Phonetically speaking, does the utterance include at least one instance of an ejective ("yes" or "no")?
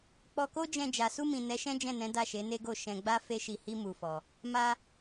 no